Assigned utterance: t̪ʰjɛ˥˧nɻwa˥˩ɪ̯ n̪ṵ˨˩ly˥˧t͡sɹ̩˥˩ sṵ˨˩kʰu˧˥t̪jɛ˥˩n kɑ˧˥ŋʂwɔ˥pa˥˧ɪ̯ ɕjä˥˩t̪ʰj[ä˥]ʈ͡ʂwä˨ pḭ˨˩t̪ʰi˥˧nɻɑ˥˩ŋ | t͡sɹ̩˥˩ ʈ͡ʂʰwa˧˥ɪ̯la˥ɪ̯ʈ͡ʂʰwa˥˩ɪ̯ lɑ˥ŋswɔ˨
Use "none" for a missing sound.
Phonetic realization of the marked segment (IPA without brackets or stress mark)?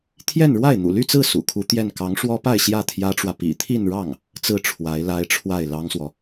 ä˥